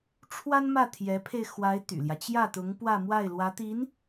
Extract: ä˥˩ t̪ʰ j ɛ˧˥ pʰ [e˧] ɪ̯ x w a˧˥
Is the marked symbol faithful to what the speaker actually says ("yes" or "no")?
yes